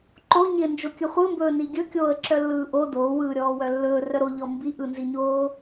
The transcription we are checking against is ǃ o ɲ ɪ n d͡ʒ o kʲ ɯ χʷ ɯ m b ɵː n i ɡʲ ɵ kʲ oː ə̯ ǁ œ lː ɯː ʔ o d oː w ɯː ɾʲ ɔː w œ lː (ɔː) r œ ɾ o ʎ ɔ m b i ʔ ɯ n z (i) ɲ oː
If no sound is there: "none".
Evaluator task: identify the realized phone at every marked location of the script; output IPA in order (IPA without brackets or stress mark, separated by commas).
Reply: ɵː, i